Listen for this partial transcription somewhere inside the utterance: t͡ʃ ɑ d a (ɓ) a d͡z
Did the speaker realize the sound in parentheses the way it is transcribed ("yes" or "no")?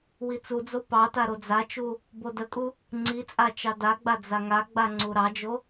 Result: no